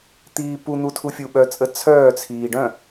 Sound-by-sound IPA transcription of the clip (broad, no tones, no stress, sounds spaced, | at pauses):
t̪ iː p u n̪ u tʰ u fʲ u ɓ œ t͡sʼ ə t͡sʰ œː t͡sʰ iː ɖ œ̃